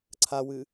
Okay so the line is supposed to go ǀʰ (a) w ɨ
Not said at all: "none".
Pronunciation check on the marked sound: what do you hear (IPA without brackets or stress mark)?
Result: a